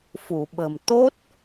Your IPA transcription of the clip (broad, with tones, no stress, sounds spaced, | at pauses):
f u˧˩ ɓ ə̤˨˩ m t̪ o˦˥ t̚